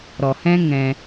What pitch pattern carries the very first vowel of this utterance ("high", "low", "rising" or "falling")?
low